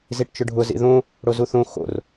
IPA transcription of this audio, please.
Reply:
z i ʈ t͡ʃ ʊ ɖʱ ʊ z ḭ ð õ | ɽ o z u θ õ x o̰ r

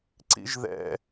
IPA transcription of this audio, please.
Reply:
ǀ ḭ ʒ ð ɛ̰

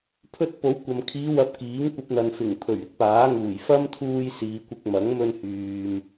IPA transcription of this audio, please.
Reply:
pʰ ɵ˧ t̚ p o˨˥ w kʷ ɐ˨ m kʰ iː˨˧ w ɐ˨˥ p̚ k iː˨˥ ŋ kʷ ɐ˧ p̚ n̪ ɐ˨ n f ɪ˨˩ ŋ pʰ ɵ˨˩ ɥ ɪ˥ k̚ p aː˨˥ ŋ uː˨˩ j f ɐ˥ m t̪ʰ uː˧ j s iː˨˧ kʷ ɪ˧ k̚ m ɐ˨˥ ŋ m ɵ˧ n h yː˨ m

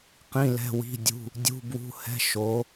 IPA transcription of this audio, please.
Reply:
q ĩ˧˥˧ l ɛ̤˧˥˧ w i̤˧˥˧ dʲ ṳ˧˥˧ | dʲ ṳ˧˥˧ b w ṳ˧˥˧ h ɛ̤˧˥˧ ʃ o˧˥

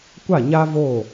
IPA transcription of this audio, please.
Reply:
kʷ a˦˨ ɲ a˦ v o˦˨

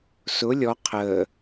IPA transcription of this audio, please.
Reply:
s ʊ lʲ ɔ qʰ əː

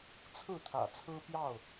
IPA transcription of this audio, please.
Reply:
t͡sʰ ɹ̩˥˨ t̪ʰ ä̰˨˩ t͡sʰ ɹ̩˦ p j ɑ˥˨ ʊ̯

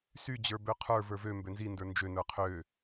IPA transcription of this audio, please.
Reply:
s y d͡ʑ ə˞ b ø qʰ ə˞ v ə˞ v ø m b ø n z i n d ə˞ n d͡ʒ ø n ə˞ qʰ ø

